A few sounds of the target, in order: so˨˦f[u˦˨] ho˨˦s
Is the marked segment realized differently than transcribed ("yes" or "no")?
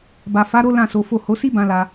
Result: yes